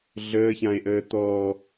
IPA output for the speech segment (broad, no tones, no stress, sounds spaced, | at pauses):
ɮ əː ç ã e̯ ʔ əː t̪ ɔ